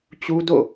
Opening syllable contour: high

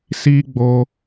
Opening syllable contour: high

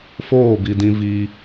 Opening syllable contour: falling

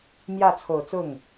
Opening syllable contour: falling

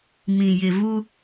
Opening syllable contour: low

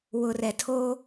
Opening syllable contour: low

